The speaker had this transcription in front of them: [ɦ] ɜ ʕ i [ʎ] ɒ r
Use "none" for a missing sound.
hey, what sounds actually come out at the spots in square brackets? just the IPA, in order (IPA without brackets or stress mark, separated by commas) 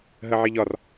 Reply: ɦ, ʎ